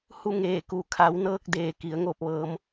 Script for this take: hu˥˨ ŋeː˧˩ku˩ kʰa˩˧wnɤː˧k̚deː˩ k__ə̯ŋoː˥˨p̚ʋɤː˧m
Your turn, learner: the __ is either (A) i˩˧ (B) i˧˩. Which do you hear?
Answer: A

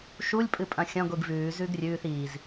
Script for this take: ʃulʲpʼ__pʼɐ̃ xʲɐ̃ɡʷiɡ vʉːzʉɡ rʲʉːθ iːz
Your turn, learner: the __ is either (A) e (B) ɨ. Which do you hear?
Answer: B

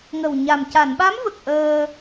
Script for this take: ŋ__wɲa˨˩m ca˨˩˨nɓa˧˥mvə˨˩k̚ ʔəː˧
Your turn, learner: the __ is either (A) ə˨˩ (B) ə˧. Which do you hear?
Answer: A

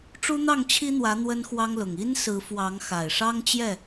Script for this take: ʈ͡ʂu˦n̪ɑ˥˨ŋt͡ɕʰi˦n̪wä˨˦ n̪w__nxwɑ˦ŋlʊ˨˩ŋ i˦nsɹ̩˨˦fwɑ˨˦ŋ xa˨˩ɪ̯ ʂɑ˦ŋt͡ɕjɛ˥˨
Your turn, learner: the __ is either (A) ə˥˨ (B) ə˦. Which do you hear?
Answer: B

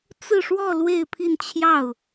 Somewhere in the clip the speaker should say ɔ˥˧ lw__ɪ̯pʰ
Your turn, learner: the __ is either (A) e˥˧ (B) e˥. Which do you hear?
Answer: A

